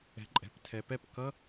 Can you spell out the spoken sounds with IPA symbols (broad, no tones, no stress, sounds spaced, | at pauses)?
ɛ̤ ǃʼ ɛ̤ p tʰ ɛ p ɛ p k ʌ